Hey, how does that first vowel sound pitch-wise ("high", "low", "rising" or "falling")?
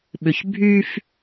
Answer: low